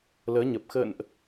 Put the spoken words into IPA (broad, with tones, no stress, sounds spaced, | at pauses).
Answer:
l əː˨˦ ɲ ə˨˩ p̚ x ə̰ː˧˨ n ʔ